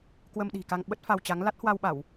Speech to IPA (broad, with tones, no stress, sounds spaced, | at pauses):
k w ə˧ m ɗ i̤˨˩ k a˧ ŋ ɓ ə˦˥ t̚ f a˧ w t͡ɕ a˨˦ ŋ l a˦˥ t̚ h w a˧ w ɓ a˧˩˨ w